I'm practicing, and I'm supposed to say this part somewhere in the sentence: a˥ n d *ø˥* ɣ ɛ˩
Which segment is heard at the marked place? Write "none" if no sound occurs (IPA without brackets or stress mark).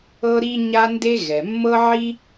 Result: e˥